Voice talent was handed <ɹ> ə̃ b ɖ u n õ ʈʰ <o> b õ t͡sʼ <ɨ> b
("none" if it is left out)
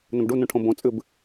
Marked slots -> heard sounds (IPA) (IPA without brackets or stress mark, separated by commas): n, õ, ɨ